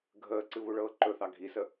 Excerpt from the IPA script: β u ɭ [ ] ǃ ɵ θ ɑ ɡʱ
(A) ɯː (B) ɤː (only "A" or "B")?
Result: B